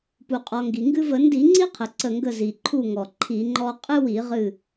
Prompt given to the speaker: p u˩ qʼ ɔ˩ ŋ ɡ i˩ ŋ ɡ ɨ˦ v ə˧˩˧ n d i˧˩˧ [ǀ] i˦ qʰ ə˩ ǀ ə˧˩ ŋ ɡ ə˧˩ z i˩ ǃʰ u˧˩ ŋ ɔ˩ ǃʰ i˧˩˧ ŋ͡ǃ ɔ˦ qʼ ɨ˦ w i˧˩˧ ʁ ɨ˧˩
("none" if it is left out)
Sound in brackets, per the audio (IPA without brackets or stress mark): ŋ͡ǀ